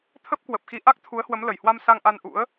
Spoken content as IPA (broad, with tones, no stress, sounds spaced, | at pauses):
t̪ʰ ə˦˥ p̚ k w ə˨˩ p̚ x i˧ ʔ a˦˥ k̚ t̪ʰ u˨˦ ə̯ h w ə˨˦ m l ə˧˩ j h w a˧ m s a˧ ŋ ʔ a˧ n ʔ ṵ˧˥ ə̯